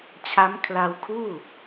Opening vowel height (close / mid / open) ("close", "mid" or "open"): open